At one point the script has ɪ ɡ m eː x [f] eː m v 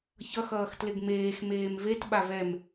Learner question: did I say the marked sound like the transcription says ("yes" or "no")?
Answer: no